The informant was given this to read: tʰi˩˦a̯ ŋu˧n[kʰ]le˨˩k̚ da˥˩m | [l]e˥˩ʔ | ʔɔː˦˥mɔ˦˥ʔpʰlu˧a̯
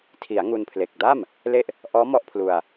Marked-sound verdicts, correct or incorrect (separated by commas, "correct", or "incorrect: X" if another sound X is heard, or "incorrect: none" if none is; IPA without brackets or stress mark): incorrect: pʰ, correct